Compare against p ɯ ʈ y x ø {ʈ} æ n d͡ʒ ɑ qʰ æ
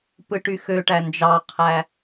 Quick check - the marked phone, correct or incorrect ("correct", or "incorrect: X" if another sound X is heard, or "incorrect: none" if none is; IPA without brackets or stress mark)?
correct